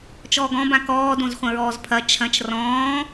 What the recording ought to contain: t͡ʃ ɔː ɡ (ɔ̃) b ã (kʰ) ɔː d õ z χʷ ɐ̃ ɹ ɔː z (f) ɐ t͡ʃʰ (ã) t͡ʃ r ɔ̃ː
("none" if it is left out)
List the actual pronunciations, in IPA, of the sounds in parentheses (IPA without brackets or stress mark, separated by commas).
ɔ̃, k, pʰ, ɐ̃